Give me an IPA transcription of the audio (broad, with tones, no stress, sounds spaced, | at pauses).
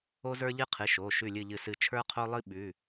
o˥ z ə˞˥ ʎ ɨ˥ qʰ ɨ˩˧˩ ʃ o˩˧˩ ʃ ʉ˦˨ lʲ ɨ˦˨ ʎ ɨ˦˨ s ɨ˦˨ t͡ʃʰ ə˞˥ qʰ o˥ lˠ ɨ˥ ɓ ʉ˩˧˩